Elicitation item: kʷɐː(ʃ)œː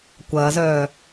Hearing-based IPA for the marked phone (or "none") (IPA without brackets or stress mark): z